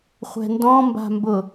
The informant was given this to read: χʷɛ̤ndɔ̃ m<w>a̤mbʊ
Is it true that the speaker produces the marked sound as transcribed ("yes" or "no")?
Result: no